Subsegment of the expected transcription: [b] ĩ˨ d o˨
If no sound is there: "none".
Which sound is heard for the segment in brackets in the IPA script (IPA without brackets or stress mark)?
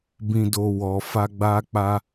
b